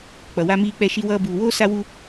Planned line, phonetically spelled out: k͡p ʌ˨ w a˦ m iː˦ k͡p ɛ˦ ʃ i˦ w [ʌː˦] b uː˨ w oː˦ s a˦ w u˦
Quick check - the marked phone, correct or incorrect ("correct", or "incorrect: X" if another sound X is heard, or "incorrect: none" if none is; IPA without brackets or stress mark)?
correct